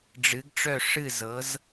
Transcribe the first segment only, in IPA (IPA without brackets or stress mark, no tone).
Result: ɖ͡ʐ